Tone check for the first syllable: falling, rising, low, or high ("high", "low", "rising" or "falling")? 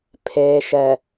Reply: low